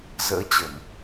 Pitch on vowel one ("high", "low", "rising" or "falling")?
rising